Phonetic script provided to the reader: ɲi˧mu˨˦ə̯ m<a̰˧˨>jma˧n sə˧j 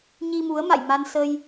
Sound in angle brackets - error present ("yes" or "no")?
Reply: no